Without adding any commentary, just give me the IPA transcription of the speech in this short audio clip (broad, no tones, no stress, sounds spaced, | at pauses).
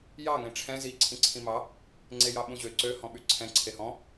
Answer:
j ɑ ŋ ẽ ʈ͡ʂʰ ɛ̃ z i ǀʰ ĩ ǀʰ ĩ m ɑ | ŋ͡ǀ e j ɑ ɓ ũ ʑ ø ǀ ø h ɔ̃ ɓ y ǀʰ ɛ̃ ǀʰ e h ɔ̃